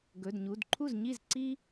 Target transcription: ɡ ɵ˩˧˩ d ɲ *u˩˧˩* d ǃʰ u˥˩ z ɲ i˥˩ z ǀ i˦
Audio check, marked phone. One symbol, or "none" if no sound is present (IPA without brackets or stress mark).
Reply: u˩˧˩